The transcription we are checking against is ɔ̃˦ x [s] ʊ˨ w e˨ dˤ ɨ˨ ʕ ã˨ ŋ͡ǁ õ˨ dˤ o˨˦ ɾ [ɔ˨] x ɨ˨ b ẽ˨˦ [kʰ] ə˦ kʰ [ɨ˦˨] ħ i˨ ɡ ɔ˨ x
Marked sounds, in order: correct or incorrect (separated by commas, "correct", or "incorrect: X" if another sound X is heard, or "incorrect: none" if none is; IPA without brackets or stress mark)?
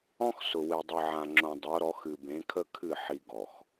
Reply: correct, incorrect: ɔ˨˦, correct, correct